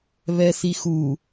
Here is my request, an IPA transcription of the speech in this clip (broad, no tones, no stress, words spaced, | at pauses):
βɛsixu